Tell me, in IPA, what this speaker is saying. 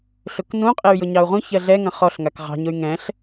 ɬ ʊ k n ũ qʼ e y̯ j ʊ ɲ ɑ u̯ ʁ ũ ç ɜ ɮ ɛ ŋ ɐ̃ χ ɔ ɬ ŋ a k ʁ ɑ̤ ɲ ʊ y̯ ŋ ɛ̃ ɬ

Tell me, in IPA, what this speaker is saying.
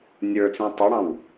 nʲ ə˞ t͡s ĩ tˤ ɑ ɽ ɑ̃ w

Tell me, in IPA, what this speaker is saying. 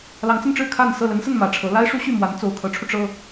l ɑ˧˥ ŋ t͡s ə˥˧ n ʈ͡ʂ ɻ̩˥˧ kʰ a˥˧ n s ɤ˥˩ l ə˧˥ n s ə˥˩ n m ä˨˩ ʈ͡ʂʰ ɤ˧˥ l a˥ ɪ̯ ʂ u˥ ɕ y˥˩ m w a˧˥ n t͡s o˨˩ ʊ̯ kʰ ɤ˧˥ ʈ͡ʂʰ u˧ ʈ͡ʂ ɤ˥

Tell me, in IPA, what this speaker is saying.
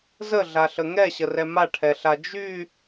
z ə ɮ a ɬ ə ŋ ɛ ɕ ə r ɛ m a ʈʰ ɛ ɬ a d͡ʒ y

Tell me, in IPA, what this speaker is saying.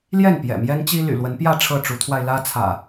l j ɛ˥˨ n p j ɛ̰˨˩ m j ɛ˦ n t͡ɕ i˦ l y̰˨˩ l w ə˨˦ n p j ä˥˨ ʈ͡ʂʰ ɤ˥˨ ʈ͡ʂ u˨˦ t̪ʰ w a˧ ɪ̯ l ä˦ t͡sʰ ä̰˨˩

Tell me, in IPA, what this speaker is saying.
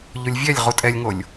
ʎ o lʲ vʲ ɛ lʲ ʁ u tʼ ɛ lʲ ŋ o lʲ

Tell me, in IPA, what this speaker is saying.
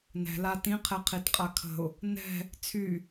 n ɛ̤ l a t ĩ qʰ ɛ qʰ i t qʼ a kʰ ə̤ ʊ̯ | n ɛ̤ | t͡sʰ y

